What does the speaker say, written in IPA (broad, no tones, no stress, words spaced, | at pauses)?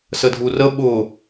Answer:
sədʱurə ɓʊ